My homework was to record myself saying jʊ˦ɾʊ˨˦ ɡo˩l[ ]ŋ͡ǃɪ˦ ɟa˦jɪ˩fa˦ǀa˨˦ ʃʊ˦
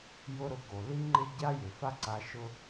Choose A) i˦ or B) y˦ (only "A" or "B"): A